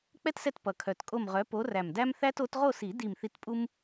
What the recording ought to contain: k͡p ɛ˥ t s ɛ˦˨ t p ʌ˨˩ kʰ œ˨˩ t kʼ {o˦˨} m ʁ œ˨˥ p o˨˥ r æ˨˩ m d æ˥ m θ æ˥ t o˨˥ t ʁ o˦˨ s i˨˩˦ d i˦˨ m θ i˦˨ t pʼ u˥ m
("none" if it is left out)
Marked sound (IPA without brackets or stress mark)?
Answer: o˦˨